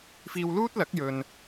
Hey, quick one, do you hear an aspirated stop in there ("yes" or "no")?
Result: no